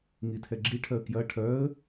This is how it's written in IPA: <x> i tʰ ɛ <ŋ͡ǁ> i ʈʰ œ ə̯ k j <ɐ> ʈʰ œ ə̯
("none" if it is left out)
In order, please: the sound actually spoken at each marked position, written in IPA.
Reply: ŋ, ɡ͡ǁ, ɐ

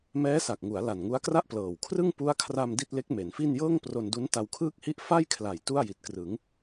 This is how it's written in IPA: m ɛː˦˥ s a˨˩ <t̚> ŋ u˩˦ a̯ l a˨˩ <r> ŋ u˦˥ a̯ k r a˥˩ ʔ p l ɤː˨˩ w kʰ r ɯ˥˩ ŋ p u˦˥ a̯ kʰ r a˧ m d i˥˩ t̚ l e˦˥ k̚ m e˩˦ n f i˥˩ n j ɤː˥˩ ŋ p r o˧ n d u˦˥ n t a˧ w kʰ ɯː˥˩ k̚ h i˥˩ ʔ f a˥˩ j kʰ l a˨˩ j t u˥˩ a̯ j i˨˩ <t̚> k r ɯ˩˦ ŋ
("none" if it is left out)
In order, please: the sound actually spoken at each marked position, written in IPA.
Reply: k̚, n, t̚

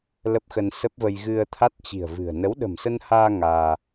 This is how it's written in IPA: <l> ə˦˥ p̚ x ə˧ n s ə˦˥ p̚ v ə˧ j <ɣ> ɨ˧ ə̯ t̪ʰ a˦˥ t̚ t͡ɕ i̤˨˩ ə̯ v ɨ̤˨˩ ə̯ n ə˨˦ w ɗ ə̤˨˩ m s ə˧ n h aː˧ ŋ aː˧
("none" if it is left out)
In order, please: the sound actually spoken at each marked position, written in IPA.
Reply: l, ɣ

